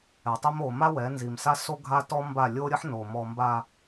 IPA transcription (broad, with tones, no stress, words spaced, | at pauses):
ɛ˨tˤi˦m o˨ ma˦wɛ˨˦ nzi˨m sa˦so˦ ɡʱa˦tɔ˦ mba˦˨ lʲo˦ɾʲə˦ħno˨ mɔ˨mba˨